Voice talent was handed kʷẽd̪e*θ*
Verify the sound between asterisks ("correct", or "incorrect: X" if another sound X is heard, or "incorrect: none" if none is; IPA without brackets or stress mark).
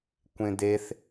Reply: correct